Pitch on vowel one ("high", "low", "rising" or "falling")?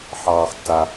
low